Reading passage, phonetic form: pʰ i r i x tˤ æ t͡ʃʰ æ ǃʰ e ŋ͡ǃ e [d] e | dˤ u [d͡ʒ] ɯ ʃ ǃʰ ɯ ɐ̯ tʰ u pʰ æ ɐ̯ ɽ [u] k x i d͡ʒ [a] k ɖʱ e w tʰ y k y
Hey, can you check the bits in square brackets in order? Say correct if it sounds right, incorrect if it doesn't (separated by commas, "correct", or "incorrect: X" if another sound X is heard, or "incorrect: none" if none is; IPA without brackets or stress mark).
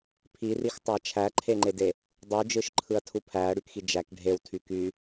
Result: correct, correct, incorrect: y, incorrect: æ